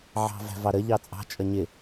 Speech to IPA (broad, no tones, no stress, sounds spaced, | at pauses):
ʕ ɑ̤ v æ̤ v ɑ ɾ ə ʎ ɑ t͡sʼ ɑ̤ t͡ʃʼ ʌ ɲ ɪ